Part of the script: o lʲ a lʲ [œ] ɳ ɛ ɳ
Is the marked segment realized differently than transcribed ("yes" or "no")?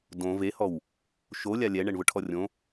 yes